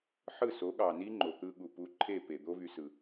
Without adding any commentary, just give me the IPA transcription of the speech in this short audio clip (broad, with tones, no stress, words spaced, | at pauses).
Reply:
ħɯ˦˨so˨˦ɠɑ˨ni˦ ŋ͡ǃo˨t̪ɯ˦ ɠu˨pu˧ ǃʰe˦˨pe˨d̪o˦ vy˧sɯ˨